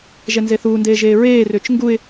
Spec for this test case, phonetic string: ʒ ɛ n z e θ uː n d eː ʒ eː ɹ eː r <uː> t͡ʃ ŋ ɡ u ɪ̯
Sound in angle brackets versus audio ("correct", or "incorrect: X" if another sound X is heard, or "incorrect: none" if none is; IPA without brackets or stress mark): incorrect: ʏː